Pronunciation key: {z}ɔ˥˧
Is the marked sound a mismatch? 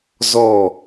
no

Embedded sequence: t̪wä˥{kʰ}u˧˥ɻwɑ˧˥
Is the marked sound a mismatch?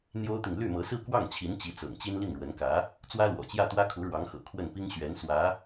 no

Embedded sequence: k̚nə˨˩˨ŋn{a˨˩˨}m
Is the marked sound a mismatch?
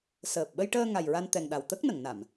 no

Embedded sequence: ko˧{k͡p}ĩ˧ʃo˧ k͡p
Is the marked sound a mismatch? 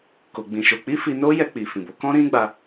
yes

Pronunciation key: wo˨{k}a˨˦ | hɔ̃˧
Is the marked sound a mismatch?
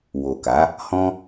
no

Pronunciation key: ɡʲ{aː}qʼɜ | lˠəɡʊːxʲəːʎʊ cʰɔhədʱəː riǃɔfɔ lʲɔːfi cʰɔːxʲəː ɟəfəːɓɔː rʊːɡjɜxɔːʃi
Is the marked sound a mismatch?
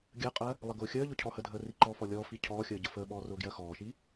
yes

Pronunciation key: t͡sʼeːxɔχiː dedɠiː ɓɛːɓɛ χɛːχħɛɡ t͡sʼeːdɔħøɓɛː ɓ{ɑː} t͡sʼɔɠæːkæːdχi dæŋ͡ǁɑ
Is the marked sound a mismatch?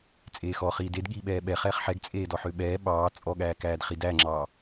no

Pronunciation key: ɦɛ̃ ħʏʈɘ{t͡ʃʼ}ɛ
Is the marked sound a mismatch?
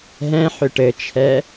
yes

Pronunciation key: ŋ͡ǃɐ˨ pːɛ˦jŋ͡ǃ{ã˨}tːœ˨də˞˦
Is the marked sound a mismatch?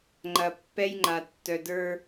yes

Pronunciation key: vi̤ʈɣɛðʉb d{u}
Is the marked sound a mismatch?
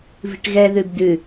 yes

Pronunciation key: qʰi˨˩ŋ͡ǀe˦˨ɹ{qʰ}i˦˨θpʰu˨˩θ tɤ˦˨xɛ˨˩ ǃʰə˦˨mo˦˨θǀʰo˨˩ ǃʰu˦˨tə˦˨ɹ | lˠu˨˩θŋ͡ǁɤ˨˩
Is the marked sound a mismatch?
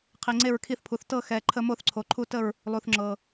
yes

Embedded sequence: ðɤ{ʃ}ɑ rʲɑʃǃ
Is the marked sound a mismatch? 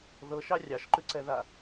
no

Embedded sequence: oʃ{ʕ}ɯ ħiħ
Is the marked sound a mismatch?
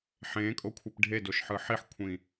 yes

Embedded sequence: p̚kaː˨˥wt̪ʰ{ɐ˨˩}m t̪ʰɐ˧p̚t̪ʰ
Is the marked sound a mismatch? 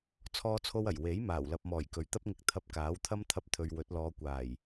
yes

